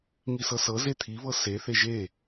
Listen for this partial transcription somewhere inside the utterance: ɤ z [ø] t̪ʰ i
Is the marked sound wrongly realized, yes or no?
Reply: yes